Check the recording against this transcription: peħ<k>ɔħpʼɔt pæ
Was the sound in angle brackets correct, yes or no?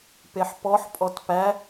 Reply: no